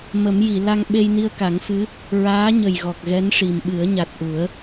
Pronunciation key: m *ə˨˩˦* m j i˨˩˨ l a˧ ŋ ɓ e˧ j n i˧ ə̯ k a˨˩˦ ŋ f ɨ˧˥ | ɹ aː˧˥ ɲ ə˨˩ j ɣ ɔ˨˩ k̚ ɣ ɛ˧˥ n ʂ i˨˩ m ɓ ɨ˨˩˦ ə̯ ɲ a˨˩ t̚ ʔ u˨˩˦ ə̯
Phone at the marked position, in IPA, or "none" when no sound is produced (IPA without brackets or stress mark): ə˨˩˦